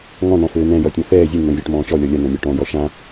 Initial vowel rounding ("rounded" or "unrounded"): rounded